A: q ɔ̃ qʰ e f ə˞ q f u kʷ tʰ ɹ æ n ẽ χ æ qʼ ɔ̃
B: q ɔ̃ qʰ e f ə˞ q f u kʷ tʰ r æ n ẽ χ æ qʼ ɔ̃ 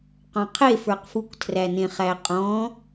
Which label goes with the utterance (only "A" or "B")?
B